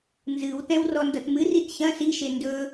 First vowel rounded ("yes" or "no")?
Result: no